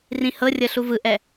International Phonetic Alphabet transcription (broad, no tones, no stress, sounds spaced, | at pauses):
r ĩ h ɤ rʲ ɤ ɬ u v ɯ ʔ ɛ